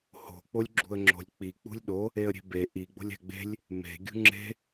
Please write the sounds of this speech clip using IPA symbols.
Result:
h o̤ k͡p o lʲ ɡ͡ǁ ṳ ə̯ ŋ͡ǁ o̤ lʲ k͡p i k͡p ṳ lʲ ɗ o | e ə̯ ɾʲ e̤ b e ʔ i ɡ͡b o̤ lʲ æ̤ ɡ͡b e̤ lʲ | m e̤ ɡʲ ṳ ŋ͡ǁ e̤

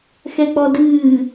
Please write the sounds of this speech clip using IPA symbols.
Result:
x ɛ k͡p ɔ d ɨː

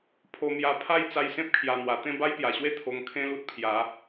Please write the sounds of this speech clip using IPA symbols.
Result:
pʰ o˧ m j a˧ pʰ a˥˧ j t͡s a˧ j s ẽ˦ p̚ kʰ j a˨˩ n̪ w a˨˩ t̪ ẽ˥˧ b a˦ j p j a˨˩ ɕ w e˦ t̪ʰ o˧ ŋ kʰ ẽ˦ l u˦ t̚ pʰ j a˨˦

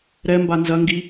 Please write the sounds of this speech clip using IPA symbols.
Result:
ɾ ɛ m b a n z ɐ ŋ ɡ i

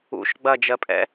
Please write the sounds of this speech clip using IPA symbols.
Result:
ṵ ʃ ɡ͡b ɐ d͡ʒ ɜ pʼ ɛ̰

